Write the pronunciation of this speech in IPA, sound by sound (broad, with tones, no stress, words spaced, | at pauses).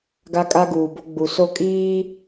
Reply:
ɡa˦kʼa˦ɡuː˨bo˦ ɡ͡bu˨so˦kʼiː˦